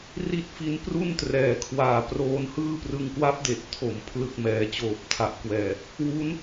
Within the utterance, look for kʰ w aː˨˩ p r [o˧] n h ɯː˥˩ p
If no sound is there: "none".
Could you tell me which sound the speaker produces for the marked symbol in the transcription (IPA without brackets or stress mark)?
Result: oː˧